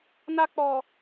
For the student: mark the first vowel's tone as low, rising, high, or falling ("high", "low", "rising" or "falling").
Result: high